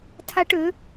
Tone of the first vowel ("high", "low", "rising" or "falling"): high